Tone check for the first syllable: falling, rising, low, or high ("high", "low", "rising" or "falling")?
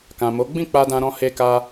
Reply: low